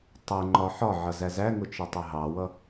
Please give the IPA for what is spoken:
tˤ ɛ ŋ͡ǃ ɒ ħ ɒ ʕ ʌ z æ z æ ŋ ʊ t͡ʃ ɛ tˤ ə ɦ ɑ w ʌ

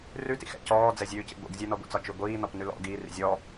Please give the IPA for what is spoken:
r ʉ t ḭ x ɛ̰ c ɔː d͡z ɛ zʲ ʉː c ḭ ɡʷ ḭ ɡ zʲ ɛ n ɔ ɡʷ ḭ t͡s ɒ t͡ʃ ʉ ɡʷ iː n ɔ p n ʉ l ɔ̰ ɡ iː r ḭ zʲ ɔ

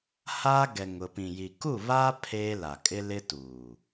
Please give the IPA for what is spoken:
h aː˦ ɡ ɛ˨ ŋ ʊ˨ p ĩ˨ j i˨ k u˦˨ β aː˦ pʰ eː˦ l a˨ kʼ ɪ˦ l ɪ˦ t uː˨

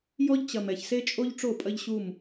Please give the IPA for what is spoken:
j ɔ˦ ʎ t͡ɕ ɐ˨ m ɛ˨ ç s e˦ t͡ʃʼ o˦ ʎ ʈ͡ʂ o˦˨ pʼ ɐ˦ ʎ ɕ u˦˨ m

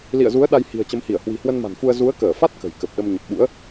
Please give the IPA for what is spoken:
l ḭ˧˨ ə̯ z u˨˦ ə̯ ɗ a˧ j h i̤˨˩ ə̯ t͡ɕ ə˨˦ m h i˧˩ ə̯ h w i̤˨˩ h w ə˧ n m a̤˨˩ n f u˧ ə̯ z u˨˦ ə̯ k əː˧˩ f a˦˥ t̚ k ə̤˨˩ j k ə˨˩ p̚ ɗ ə˧ m ɲ ə˨˩ p̚ ɓ ṵ˧˥ ə̯

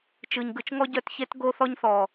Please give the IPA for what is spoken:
t͡ʃ ɯ˨ ɲ ɡ ɯ˨ t͡ʃ ŋ ɔ˦ ɟ œ˦˨ t ç e˦ t ɡ o˦ θ ɔ˦ ɲ θ ɔ˨

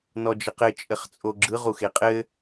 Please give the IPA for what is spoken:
n ɔ d͡ʒ ə q ɘ t͡ʃʼ ɘ χ t͡sʼ o ɡ͡ǁ ɯ ʁ u x e qʼ ɘ

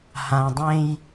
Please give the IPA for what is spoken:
h ã˩ dˤ ẽ˨ j

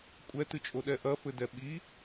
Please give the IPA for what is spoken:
kʷʼ ɛ t ɨ t͡ʃʼ o ɗ ɛ ʔ ɐ f ɘ d ɛ ɓ i

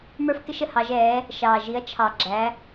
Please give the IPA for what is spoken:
m ə˞˥ f k ɪ˥ ʃ ə˥˨ h ɑ˨˥ ʒ ɛː˨˥ | ʃ ɑː˨ ʒ i˨˥ ɐ̯ t͡ʃʰ ɑ˨ ɡ͡ǁ æ˨˥

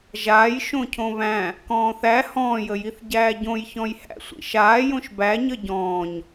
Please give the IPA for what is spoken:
ʒ aː j ʃ õ cʰ õ β æ̃ | k ɔ̃ː θ æ h ɔ̃ː j ə j i θ ɟ æː ɟ õ j ç ɔ̃ j h æ̰ sʷ ḭ ʃ aː j õ ʃ b æ ɲ ə ɟ ɔ̃ː ɲ

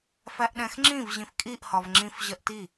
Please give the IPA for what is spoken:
f æ ʔ ɗ ɛ̃ x ŋ͡ǁ ĩ v ʑ ĩ f kʼ i ʔ h ɒ v ŋ͡ǁ ĩ f ʑ ɜ ʔ t i

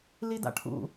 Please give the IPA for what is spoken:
l i d a̰ ʈʰ ṵ

